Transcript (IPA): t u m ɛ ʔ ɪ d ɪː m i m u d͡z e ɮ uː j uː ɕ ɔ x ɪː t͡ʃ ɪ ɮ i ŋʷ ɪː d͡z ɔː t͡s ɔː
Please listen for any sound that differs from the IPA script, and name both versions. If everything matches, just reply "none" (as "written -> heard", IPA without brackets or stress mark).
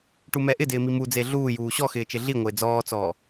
t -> ʈ